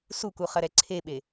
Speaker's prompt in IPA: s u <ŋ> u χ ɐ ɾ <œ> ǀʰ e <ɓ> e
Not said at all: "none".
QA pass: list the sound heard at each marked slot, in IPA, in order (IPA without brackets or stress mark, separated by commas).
k, ɛ, ɓ